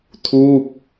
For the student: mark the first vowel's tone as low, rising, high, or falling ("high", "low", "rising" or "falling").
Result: falling